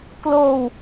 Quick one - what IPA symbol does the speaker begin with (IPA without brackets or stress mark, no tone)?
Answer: k